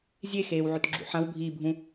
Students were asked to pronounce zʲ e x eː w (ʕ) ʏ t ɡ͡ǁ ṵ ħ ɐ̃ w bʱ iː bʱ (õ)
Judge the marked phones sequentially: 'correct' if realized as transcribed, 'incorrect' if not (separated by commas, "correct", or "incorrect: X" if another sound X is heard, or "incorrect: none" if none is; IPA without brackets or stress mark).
correct, incorrect: ũ